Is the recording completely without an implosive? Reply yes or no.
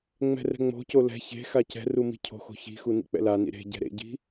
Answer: yes